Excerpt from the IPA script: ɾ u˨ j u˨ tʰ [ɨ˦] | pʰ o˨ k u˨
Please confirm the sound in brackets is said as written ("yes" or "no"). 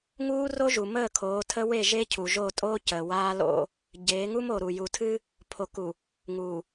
yes